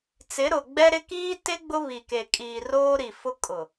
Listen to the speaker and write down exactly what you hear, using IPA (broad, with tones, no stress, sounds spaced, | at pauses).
t͡s ɪ˨˦ ɾ ʊ˨ ɡ͡b ɛ˦ ɾ ɪ˦ k iː˦ t ɪ˦ ɡ͡b ʊ˦ β i˨ k e˨ kʼ iː˨ r oː˦ ɾ i˨ f ʊ˦ kʼ ʊ˨